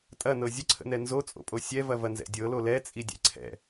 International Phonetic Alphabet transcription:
tʼɐnɤ zʲəǀʰə̰nɛ nzot͡sʼo̰pʼo sʲɛvɐvɐnzɛ̰ dʲɤlo lɛt͡sʼidʲɛ̰ ǀʰɛ̰

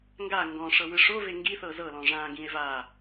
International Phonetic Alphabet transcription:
ŋɡa ŋɡɔ̃ ʂɤwɯʂove ŋɡiθɤ zɤlɔ̃ ʐãɡĩe̯ va

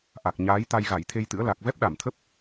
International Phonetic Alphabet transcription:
ʔa˨˩k̚ɲaː˨˦j t̪a˧jɣa˧˩jt̪ʰe˧jt̪ɨ̰˧˥ə̯ la˨˩k̚vɛ˦˥p̚ ɗa˧˩mt̪ʰə˦˥p̚

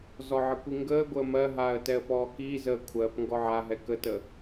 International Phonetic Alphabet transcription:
zɔʕəkʷiŋɡəː ɡʷəːmɜɦaːə̯ tɛə̯pɔːkiː zəːkʷʰɜp ŋɡɔʕaɦɛ kətə

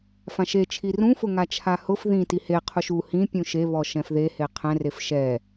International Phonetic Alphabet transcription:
fãʃe t͡ʃʰirũfʊ ŋat͡ʃʰahʊf ðĩ tihe qʰuʃu hĩ pʲũʃe βɔʃɛ̃fðehe qʰɛ̃ref ʃɛ

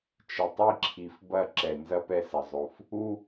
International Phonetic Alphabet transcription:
t͡ʃɪ˨tˤi˦˨ǁʰi˨f bɐ˦˨ ǁɛ˨ nzɐ˦pɛ˨sɐ˨zˤo˨f | u˦

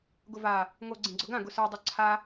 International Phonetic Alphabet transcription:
ɡʊva | ŋo ɡ͡ǀĩɡ͡ǀʊɡã ɡʊsə˞ dˤoǀʰa

